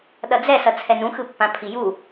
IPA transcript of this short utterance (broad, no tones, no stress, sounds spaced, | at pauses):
ɗ ʌ d͡z ɛ s ʌ t͡sʰ ɛ n ũ x ɯ pː ã pʰ i j u